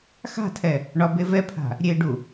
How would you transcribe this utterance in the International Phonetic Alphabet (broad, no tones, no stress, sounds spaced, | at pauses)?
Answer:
x a̤ tʰ ɛ | ɳ ɒ b e v ɛ pʰ a̤ | ɾʲ e ɖ u